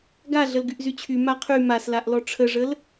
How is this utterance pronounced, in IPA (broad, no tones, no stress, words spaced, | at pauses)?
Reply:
ɡa ɮəlɡyʔzyt͡ɕʰy maqʰy maslaʔ lɔʈ͡ʂʰəʐəl